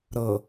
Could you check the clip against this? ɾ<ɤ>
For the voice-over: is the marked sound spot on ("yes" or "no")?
yes